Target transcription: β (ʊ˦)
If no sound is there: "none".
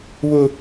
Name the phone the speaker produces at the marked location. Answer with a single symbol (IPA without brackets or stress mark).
ʊ˦